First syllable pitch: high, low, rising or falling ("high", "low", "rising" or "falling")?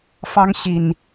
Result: high